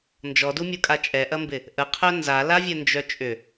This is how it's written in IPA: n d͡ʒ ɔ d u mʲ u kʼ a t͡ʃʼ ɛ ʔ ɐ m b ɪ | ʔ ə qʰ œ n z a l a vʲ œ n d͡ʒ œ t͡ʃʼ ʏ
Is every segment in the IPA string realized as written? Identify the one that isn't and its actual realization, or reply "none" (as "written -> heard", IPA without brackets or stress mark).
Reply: none